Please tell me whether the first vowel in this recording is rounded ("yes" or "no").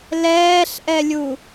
no